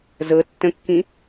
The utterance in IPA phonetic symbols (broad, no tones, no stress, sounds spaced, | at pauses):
z ɤ tː ə̃ kː ĩ